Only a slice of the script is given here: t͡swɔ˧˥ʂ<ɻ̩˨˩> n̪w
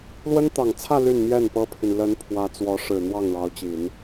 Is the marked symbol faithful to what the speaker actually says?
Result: yes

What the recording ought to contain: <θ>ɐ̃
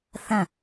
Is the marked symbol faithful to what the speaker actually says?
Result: yes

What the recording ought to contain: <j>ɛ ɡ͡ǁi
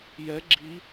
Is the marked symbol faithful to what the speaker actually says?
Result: yes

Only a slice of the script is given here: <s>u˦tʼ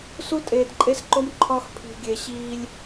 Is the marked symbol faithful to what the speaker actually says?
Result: yes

